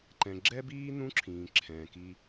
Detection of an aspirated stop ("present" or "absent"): present